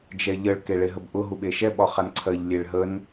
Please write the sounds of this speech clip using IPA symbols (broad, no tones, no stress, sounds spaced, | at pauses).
d͡ʒ ɛ ʎ ə ɭ k e ɭ e ɦ ə b ʔ ʊ ɦ u ɓ e ʃ ɛ ɓ ɒ χ a n ǀʰ ɜ ʎ lʲ e ɭ ɦ ə n